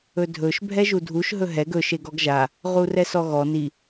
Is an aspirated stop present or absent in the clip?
absent